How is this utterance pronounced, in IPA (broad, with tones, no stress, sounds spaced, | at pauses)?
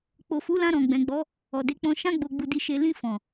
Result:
k͡p o˨ f u˨˦ l ã˧ ɾ ɔ̃˨ ɡ͡b ɛ̃˨ ɡ͡b ɔ˨˦ | ɔ˨ d e˨˦ k͡p ɔ̃˧ ʃ ã˧ ɡ͡b o˨ ɡ͡b u˨ d i˧ ʃ e˧ l ĩ˧ f ɔ̃˨